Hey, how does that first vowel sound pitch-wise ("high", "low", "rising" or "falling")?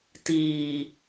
low